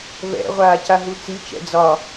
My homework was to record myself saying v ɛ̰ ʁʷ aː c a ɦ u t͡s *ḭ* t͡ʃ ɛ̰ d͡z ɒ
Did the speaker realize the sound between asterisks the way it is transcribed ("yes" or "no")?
no